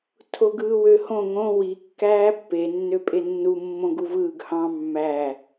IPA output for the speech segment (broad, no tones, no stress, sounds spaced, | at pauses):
tʰ o ɡ ɯː w ø h õ ŋ õ w i kː æː pː e nː ø pʼ e nː u mː õ ɡ u v ɯː ɡ h ɑ̃ mː æ